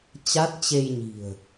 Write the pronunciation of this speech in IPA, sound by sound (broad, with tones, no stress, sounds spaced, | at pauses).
t͡ɕ a˦˥ t̚ t͡ɕ e˧ j ɲ i̤˨˩ ə̯